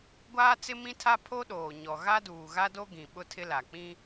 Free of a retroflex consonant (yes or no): yes